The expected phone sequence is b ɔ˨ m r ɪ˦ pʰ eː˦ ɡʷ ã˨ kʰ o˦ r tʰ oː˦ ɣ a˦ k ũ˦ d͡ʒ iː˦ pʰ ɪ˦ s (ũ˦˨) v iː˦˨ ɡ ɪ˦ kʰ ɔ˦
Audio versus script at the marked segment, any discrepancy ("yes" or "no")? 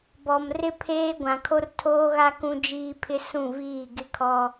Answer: no